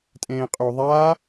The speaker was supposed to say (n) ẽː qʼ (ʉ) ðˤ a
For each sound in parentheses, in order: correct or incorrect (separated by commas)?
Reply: incorrect, incorrect